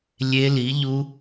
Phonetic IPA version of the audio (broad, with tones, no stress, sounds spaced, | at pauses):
lʲ e˦˥ l i˨˥ ʎ u˦˥